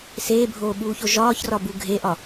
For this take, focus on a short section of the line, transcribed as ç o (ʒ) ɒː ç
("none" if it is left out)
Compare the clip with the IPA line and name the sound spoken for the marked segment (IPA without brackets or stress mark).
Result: ʒ